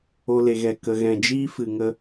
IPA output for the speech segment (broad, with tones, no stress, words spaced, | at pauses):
o˧ le˧ɣɛ˧ kə˧ɣɛ̃˧ d͡ʒiː˦fɨ˨ŋə˧